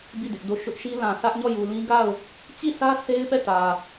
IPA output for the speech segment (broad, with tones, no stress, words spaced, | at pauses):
bi˦˨ dɪ˦ʔdo˦˨ ʃʊ˦ʔʃi˦ lã˨sä˦ʔɲɔ˦˨ ju˨lĩ˦ɡa˦˨ʊ̯ | t͡ɕi˦˨sä˦ se˦ɪ̯pɛ˦˨ tä˨